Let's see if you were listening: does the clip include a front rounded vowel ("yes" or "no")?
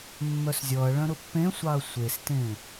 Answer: yes